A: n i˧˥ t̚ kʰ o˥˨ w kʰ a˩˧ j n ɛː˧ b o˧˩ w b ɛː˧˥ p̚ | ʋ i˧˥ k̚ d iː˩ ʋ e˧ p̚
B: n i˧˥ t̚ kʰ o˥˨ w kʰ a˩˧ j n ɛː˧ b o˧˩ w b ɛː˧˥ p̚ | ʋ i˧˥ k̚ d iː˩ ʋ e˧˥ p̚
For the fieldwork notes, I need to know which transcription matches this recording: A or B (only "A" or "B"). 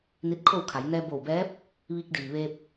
A